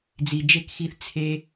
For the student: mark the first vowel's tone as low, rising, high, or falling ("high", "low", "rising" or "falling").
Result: low